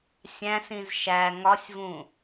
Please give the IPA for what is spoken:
sʲæ̃sĩz ʃæ ŋɒsʲvũ

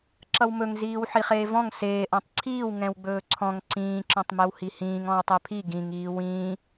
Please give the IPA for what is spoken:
ǁʌwmɵŋziːw ħiχeːvɔ̃ŋ seːʔɔ̃tˤ ǀʰiːw ŋɛ̃wɡ͡bɵːǀʰɔ̃ŋ ǀĩː ǁɔ̃tˤmɛwhihĩːŋ ɔ̃wtˤɛpʰi ɡĩŋ iːwĩː

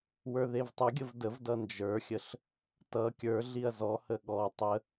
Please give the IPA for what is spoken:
wə˞ðevtˤʌɡʲəv dəvdʌ nd͡ʒə˞xʲəɬ | tʌ kʲə˞ɮiɐ̯ zɔhə ɠɔ tˤə

